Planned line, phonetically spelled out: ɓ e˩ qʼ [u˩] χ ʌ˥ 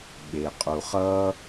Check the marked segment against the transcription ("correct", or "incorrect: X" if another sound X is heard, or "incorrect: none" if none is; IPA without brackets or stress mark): correct